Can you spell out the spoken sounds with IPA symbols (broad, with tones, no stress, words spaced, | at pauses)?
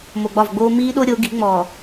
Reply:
mo˨ɡ͡bɒ˦˨vɡ͡boː˦ miː˦ɗo˦ ɾʲo˨˦ɡi̤˨˦ŋ͡mɔː˨